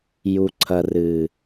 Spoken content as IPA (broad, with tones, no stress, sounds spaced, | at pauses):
j u˨ ǀʰ ɐ˨ r ɨ˨